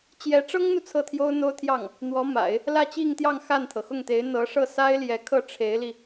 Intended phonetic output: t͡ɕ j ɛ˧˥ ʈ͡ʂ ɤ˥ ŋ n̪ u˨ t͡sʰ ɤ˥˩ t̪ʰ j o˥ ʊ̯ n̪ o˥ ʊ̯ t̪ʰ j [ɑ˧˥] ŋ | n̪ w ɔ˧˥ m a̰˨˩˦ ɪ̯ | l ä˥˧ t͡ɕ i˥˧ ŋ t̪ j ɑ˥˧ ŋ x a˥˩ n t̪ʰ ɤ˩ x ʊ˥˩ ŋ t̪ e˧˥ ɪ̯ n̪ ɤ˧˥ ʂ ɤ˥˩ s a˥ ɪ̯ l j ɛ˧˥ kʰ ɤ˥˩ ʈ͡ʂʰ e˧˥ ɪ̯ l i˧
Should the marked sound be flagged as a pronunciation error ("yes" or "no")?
yes